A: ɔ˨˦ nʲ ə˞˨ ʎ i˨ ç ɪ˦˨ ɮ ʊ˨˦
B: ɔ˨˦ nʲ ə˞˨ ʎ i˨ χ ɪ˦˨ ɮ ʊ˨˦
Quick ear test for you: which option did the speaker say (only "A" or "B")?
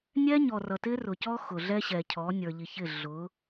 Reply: A